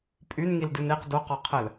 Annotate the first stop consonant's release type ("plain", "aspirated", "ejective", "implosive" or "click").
ejective